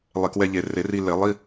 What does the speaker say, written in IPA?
lˠ e˧˩˧ k w ɛ˧ ʎ e˨˩ r e˧˩˧ r i˧ l e˧˩˧ lˠ i˧˥˧

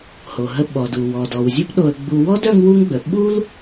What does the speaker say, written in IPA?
h o˩ ɦ ə˧ ɓ ɔ˩ d u˩ w ɔ˩ d ɔ˩ w zʲ u˥ p ɗ o˧ ə̯ ɡ͡b u˧ w ɔ˥ d œ˥ ŋ w u˥ ŋ ɡ͡b ə˩ ɓ u˥ l

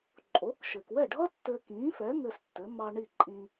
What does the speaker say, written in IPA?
ǃʼ o˩˥ k ʃ ɘ˩ k w ɛ˥˩ ɖʱ ʌ˥ tː ɘː˧ k ĩː˩˥ f ɛ˩˥ ŋ ɘ˧ s tː ɘ˩˥ m ɑ˧ ɳ i˥˩ ǃʼ ĩ˧

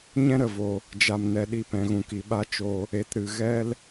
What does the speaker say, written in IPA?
ɲ ɛ̃˦ ɾ ə˨ v o˧ | d͡ʒ a˨ m n ɛ˨ ɗ i˧ p ɛ̃˨ ɣ ũ˨ k i˨ ɓ a˦ t͡ʃ o˦ | e˨˦ t ɾ ɨ˨ ɣ ɛ˦ l

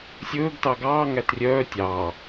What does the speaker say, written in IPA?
sʲ ɵː ɡ t ɑ ɡ ɑː ŋ æ t rʲ œː tʲ ɑː

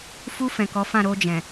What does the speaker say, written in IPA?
f u˧ f ɛ̃˨ k ɔ˨˦ f ã˦˨ ɾ o˧ d͡ʒ ɛ̃˨

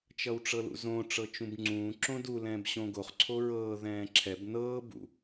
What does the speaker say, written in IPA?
t͡ʃ ʌ w ʈ͡ʂ ɤ l ṵ z õ ʈ͡ʂ ɤ t͡ʃ ũ b ŋ͡ǀ ũː ǁ õ d u l ɛ̃ː b ɕ õ ɡ o χ ǀʰ o ɹ ɤː ð ɛ̃ː ǁʰ ɛ b n ɤː b ṵ

